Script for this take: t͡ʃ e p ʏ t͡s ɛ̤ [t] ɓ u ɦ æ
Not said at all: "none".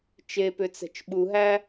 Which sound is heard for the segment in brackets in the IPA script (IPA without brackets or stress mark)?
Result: t͡ʃ